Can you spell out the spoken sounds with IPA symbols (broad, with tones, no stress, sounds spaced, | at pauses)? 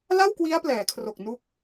l a˥˩ w k w i˦˥ a̯ p l ɛː˩˦ kʰ r o˨˩ k̚ n u˦˥ k̚